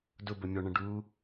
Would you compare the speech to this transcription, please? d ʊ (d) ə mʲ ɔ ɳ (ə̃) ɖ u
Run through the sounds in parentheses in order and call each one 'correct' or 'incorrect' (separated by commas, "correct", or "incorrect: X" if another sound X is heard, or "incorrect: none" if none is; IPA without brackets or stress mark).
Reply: incorrect: b, correct